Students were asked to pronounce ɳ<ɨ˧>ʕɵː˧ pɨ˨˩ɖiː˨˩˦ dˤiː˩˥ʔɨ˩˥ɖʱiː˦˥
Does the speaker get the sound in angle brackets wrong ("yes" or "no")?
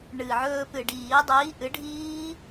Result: yes